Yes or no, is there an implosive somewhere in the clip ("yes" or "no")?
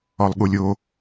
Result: yes